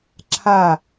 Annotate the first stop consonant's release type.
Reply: click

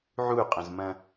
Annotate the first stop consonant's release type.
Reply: ejective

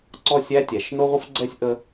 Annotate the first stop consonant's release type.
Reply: click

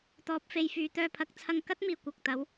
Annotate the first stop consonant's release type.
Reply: plain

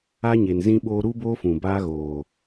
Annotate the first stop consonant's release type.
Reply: implosive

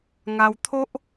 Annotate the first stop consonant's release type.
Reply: aspirated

